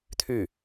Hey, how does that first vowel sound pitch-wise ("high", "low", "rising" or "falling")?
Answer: falling